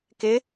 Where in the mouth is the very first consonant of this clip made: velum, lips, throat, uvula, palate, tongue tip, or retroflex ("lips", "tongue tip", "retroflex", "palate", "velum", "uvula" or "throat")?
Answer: velum